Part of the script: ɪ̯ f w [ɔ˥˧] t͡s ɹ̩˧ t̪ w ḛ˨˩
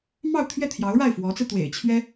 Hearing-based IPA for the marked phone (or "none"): ɔ˧˥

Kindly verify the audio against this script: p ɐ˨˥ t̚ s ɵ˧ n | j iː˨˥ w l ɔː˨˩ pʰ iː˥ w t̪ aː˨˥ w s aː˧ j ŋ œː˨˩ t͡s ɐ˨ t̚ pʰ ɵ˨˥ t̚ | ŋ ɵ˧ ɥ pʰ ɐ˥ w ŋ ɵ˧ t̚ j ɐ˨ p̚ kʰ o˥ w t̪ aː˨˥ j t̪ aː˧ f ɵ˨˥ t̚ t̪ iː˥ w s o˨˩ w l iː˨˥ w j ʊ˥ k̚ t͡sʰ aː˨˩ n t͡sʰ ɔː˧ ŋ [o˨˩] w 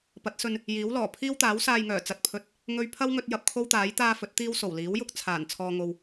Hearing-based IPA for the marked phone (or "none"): o˧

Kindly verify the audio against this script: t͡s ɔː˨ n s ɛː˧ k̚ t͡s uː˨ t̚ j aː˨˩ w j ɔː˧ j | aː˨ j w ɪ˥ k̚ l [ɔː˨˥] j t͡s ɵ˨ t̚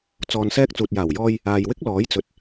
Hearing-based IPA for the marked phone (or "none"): ɔː˨˥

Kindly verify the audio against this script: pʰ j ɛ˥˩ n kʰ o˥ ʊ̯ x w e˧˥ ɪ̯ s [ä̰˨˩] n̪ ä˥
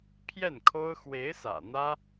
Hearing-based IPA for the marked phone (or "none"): ä̰˨˩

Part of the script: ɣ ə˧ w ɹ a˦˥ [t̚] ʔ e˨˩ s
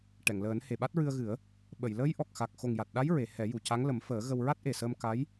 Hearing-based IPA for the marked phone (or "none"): t̚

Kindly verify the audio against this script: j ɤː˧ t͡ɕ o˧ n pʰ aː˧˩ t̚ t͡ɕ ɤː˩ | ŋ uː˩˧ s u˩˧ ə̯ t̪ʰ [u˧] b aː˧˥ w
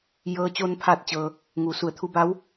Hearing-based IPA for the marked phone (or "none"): u˧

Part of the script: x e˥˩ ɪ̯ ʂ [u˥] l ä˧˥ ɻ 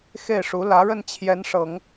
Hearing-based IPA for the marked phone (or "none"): u˧˥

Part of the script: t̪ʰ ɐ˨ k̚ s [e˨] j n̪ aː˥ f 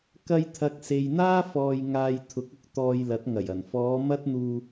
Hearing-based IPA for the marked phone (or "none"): e˨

